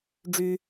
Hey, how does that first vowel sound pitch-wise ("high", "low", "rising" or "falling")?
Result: high